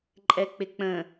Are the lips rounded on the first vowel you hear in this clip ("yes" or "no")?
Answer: no